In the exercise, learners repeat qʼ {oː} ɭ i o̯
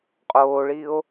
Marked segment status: correct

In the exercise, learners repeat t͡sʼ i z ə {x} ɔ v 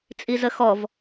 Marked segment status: correct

